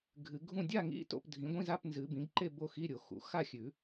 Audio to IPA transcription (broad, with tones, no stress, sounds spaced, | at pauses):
ɡʱ ɨ˨˩˦ ɡʱ ũ˥˩ dʲ a˥˩ ŋ ḭ˧˥˧ t o̰˥˩ p dʱ ĩ˩˥ ɡʷ ĩ˧˥˧ z a˧˥˧ p n z ɨ˨˩˦ b ĩ˩˥ ɡ ǃ e˥˩ b o˥˩ x i˧˥˧ ɾʲ o˨˩˦ x ṵ˩˥ x a˥˩ xʲ ʉ˨˩˦